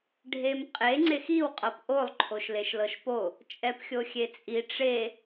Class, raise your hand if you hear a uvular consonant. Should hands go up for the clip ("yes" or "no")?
yes